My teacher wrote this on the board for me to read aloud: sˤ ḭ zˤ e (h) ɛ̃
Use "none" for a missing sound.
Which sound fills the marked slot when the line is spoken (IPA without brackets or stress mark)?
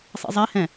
h